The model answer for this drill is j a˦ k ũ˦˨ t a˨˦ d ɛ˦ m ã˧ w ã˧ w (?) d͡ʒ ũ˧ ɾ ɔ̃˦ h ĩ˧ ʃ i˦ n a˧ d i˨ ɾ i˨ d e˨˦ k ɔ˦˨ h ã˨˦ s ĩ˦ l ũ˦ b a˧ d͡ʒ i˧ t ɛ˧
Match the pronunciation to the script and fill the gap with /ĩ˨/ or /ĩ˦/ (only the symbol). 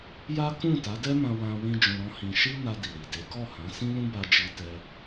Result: ĩ˦